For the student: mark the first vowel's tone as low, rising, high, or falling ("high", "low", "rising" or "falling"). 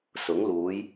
rising